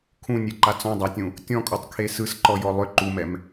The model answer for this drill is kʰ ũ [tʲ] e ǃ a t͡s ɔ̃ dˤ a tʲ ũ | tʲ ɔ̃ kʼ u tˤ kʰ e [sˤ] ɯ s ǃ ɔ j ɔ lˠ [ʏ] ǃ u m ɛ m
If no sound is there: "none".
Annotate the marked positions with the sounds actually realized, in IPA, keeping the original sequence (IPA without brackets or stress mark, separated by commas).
nʲ, s, ʏ